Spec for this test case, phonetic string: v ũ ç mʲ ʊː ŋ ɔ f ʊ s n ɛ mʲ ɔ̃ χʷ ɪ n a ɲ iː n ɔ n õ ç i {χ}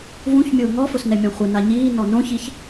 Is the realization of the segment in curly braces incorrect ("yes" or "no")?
yes